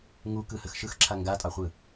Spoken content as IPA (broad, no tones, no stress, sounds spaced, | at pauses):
ŋ u k ɯ h ə x ʃ ɯ x ǁʰ a ŋ ɡ a tʼ ɑ χʷ ɯ